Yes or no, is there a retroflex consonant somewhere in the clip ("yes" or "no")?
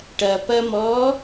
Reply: yes